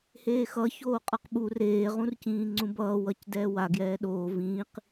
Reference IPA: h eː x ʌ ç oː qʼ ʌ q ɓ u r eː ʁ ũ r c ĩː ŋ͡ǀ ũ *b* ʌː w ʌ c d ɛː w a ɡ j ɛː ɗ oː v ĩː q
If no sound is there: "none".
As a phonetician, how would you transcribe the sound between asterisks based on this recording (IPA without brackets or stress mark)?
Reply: b